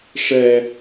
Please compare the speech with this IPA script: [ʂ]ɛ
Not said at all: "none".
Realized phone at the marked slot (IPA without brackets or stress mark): ʂ